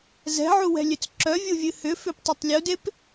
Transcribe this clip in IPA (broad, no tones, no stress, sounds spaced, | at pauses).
z ɛ̤ ʕ u w ɛ̤ lʲ ø t͡s ǁ œ vʲ u vʲ ɨ h ʏ f ʏ p tˤ ʏ tˤ lʲ u d e p